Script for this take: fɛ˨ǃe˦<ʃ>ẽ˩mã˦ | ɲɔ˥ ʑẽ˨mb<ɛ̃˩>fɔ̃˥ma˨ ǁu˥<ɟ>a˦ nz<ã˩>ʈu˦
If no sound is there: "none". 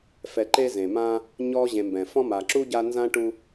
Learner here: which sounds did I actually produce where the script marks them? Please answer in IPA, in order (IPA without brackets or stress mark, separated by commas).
z, ɛ̃˩, ɟ, ã˥